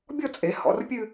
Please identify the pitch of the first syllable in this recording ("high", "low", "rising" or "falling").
falling